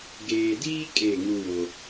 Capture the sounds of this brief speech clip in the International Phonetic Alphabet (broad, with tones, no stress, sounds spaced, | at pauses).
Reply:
ɡ eː˨ d iː˦ kʼ e˦˨ ŋ u˦ w o˦